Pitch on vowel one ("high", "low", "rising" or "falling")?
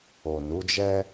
low